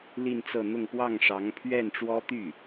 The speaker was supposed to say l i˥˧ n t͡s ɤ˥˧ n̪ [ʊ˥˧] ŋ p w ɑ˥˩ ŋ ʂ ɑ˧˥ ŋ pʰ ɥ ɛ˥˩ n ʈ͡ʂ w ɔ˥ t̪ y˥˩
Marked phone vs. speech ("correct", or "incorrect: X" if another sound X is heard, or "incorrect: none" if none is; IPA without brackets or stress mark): correct